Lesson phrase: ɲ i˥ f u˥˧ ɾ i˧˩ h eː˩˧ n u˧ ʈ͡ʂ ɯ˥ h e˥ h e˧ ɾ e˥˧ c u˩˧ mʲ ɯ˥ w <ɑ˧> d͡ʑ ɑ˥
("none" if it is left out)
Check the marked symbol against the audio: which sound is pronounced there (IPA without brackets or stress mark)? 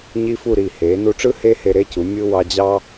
ɑ˧